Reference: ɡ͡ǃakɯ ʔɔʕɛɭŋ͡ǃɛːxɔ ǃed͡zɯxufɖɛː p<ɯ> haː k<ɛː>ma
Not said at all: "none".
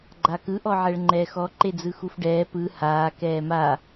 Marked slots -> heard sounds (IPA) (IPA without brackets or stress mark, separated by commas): ɯ, ɛː